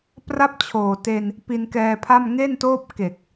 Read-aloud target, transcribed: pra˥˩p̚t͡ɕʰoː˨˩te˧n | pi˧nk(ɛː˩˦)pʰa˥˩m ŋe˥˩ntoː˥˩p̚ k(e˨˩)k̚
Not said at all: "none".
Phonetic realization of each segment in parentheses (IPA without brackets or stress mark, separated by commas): ɛː˧, e˨˩